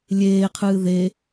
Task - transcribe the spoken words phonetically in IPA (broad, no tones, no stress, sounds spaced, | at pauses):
lʲ eː qʰ ɨː ð e